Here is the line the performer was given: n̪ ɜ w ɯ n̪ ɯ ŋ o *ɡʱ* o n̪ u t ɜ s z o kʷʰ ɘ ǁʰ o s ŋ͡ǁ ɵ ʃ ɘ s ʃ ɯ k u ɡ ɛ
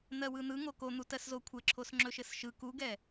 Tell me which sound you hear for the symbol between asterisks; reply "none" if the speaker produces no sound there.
k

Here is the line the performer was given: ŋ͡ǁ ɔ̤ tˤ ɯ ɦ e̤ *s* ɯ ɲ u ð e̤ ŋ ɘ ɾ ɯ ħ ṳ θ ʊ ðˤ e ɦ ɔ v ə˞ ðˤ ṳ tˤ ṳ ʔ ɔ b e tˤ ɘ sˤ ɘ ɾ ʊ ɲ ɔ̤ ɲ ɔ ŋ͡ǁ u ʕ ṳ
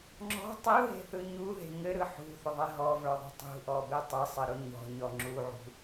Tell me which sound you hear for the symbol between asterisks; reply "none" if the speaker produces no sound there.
θ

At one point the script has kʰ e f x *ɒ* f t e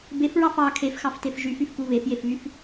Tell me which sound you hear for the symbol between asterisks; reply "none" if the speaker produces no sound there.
ɑ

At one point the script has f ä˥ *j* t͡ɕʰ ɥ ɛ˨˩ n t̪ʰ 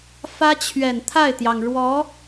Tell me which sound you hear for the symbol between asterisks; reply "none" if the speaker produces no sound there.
none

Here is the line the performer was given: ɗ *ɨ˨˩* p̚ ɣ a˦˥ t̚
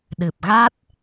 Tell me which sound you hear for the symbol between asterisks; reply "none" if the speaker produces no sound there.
ɨ˨˩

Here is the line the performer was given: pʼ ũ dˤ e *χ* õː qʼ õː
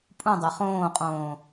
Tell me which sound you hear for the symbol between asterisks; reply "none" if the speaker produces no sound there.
χ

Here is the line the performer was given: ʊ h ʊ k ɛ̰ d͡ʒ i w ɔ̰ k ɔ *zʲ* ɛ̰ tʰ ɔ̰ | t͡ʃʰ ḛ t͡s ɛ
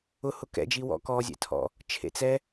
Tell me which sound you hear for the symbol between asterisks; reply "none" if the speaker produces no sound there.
zʲ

